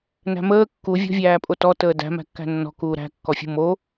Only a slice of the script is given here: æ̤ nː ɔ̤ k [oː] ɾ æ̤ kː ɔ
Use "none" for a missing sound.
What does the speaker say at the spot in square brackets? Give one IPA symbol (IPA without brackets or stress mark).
uː